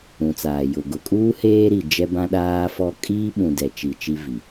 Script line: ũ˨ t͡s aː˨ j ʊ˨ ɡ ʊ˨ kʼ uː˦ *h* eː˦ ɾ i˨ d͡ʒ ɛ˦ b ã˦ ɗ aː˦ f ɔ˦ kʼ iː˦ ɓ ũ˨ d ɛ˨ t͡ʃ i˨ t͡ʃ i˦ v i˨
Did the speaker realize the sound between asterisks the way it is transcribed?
yes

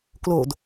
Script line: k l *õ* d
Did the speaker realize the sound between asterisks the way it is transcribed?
no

